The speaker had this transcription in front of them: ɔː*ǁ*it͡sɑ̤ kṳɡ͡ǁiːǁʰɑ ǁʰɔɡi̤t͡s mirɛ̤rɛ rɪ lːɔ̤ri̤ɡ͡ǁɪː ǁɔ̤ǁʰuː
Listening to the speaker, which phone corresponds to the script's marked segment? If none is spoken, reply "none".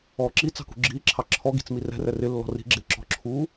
ǁ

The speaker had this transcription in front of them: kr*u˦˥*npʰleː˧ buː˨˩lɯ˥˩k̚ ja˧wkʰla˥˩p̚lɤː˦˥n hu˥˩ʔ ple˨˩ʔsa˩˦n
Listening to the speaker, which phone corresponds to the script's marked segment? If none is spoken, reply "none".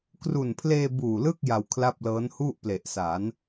u˨˩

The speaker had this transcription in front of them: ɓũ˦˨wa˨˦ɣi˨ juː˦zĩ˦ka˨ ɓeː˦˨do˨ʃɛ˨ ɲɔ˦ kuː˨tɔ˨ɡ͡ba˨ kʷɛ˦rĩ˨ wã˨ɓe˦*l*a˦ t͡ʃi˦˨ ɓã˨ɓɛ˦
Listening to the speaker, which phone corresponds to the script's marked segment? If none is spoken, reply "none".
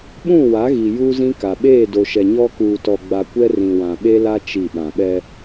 l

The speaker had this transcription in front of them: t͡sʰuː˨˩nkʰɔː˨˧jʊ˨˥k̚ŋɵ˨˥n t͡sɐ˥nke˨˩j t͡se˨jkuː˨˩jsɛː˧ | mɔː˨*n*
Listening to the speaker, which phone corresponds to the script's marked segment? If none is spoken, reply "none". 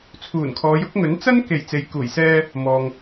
ŋ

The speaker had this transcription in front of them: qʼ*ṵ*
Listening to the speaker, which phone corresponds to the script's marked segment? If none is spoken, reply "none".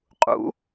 ṵ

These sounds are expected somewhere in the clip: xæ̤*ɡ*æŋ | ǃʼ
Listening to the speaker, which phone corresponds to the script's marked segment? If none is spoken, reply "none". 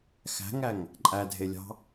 ŋ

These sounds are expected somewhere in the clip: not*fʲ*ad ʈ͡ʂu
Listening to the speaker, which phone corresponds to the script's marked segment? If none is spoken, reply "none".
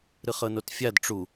fʲ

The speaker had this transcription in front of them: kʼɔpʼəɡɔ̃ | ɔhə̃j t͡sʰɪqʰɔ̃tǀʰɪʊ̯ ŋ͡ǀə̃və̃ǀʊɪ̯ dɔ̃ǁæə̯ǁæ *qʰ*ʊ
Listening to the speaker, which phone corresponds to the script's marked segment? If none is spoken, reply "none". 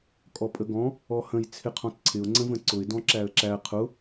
qʰ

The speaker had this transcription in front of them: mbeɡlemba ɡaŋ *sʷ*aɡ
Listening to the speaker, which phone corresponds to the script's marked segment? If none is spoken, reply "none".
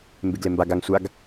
sʷ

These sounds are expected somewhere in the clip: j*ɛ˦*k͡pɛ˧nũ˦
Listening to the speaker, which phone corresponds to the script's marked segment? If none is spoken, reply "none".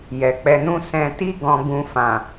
ɛ˨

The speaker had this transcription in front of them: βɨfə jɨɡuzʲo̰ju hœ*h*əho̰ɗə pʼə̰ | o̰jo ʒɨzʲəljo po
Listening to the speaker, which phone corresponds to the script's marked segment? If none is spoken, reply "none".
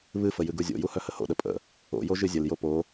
h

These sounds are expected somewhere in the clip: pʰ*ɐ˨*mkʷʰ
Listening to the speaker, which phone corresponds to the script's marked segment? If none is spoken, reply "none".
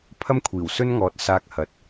ɐ˥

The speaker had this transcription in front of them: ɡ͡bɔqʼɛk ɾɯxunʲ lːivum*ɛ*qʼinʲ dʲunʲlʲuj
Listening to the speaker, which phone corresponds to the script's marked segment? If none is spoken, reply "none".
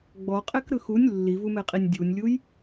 ɛ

